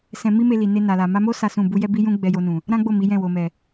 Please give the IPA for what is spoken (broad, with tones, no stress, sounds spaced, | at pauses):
s ɛ̃˧ m i˦ m e˧ l i˨ n e˧ n a˨ l a˨ m a˧ m o˦ s a˦ s ũ˦˨ b u˧ j ɛ˦ b i˦ j ũ˦ ɡ͡b ɛ˧ j o˧ n ũ˨ | ɾ ã˦ ɡ͡b o˦˨ m i˨˦ j ɛ̃˦˨ w o˨ m ɛ˨